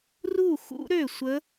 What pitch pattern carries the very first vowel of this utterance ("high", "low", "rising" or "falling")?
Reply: falling